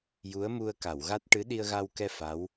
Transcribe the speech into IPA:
j u˧˥ ə̯ m u˧ ə̯ k a˨˩˨ w ɣ a˦˥ t̚ ʈ ɨ˧˥ ɗ i˧ ə̯ ɣ a˧ w k ɛ˧ f a˧˥ w

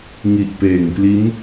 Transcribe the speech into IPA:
ŋ i˨˩ ʔ p eː˨˩ ŋ p l i˦˥ n

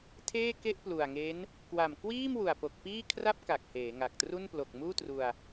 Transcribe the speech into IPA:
tʰ eː˥˩ k e˥˩ ʔ p l u˨˩ a̯ ŋ e˦˥ n | k w a˨˩ m k w iː˥˩ m w u˨˩ a̯ p o˨˩ k̚ p iː˥˩ kʰ r a˥˩ p̚ k a˨˩ k̚ h eː˩˦ ŋ a˨˩ k̚ t r u˥˩ n p l o˨˩ k̚ m uː˥˩ t r u˧ a̯

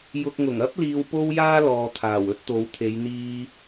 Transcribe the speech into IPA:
j ʊ˨ k̚ ŋ ʊ˨˩ ŋ ɐ˥ p̚ l iː˧ w p o˥ w j aː˥ l ɔː˨ t̪ʰ aː˨˩ w ɵ˥ t̚ t̪ o˨˧ w t̪ʰ e˨˧ j n̪ iː˧

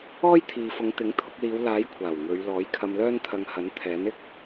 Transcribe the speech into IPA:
ɔː˥ j t̪ʰ iː˨ f ʊ˨˧ ŋ t̪ ɪ˨˥ ŋ t̪ʰ ʊ˧ k̚ l iː˨˧ w l aː˨˥ j kʷʰ aː˨˩ w ŋ ɵ˨˧ ɥ l ɔː˨˥ j kʰ ɐ˧ m l œː˥ n t̪ʰ ɐ˧ ŋ h ɐ˨˥ n t̪ʰ ɛː˨˥ n ɪ˥ k̚

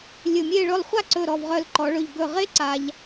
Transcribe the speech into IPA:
lʲ ɵ˧˩ mʲ e˥˧ ɭ ɵ˥˧ lˠ χʷ a˥˧ ǀ ɵ˧˩ ɾ ɔ˧˩ v ʁ œ˧˩ l ǃ ɔ˩˧ ɭ ɵ˧˩ ʎ ɡ ɵ˧˩ ʁ e˥ ǀ a˧ ʎ

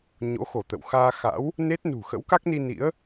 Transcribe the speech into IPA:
ɲ o̰˧˥ x o˧˩ t̪ ə̰˧˨ w x aː˧ x a̰˧˥ w | n e˦˥ t̚ n ṳ˨˩ x ə̰˧˥ w k a˦˥ k̚ n i˧ n ḭ˧˥ ə̯

